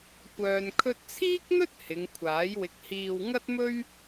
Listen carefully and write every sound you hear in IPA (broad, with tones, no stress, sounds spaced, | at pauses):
kʷ œː˨ n kʰ ɵ˧ t̚ t͡sʰ iː˥ k̚ n̪ ɵ˥ t̚ h ɪ˨˧ ŋ kʷʰ aː˨˥ j w ɪ˧ k̚ h iː˧ w ŋ ɐ˥ t̚ m ɵ˥ ɥ